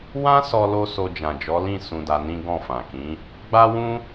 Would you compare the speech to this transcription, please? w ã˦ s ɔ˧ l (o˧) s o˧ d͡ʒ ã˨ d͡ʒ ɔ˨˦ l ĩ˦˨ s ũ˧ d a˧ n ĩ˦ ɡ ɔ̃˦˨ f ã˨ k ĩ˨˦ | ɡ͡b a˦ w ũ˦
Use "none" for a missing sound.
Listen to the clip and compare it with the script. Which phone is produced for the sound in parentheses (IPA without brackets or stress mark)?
o˧